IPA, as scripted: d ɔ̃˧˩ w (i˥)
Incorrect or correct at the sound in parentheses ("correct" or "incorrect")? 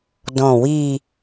incorrect